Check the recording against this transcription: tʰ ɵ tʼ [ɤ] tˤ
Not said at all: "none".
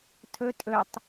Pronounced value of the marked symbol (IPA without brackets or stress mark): ɵ